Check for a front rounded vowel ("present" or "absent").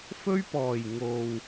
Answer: absent